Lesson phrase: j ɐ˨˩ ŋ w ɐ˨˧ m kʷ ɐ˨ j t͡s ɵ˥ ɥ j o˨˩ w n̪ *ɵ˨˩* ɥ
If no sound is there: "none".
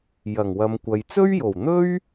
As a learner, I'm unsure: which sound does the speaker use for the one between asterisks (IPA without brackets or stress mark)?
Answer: ɵ˥